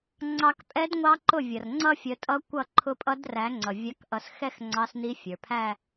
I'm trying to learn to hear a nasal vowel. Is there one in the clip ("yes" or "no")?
no